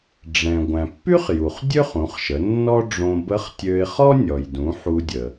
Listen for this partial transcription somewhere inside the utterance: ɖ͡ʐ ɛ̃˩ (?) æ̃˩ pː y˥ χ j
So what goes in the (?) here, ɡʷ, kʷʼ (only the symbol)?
ɡʷ